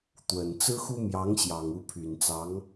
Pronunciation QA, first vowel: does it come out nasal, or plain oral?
oral